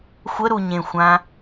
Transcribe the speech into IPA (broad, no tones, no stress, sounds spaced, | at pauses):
xʷ ə ɾ u ɲ ẽ xʷ ã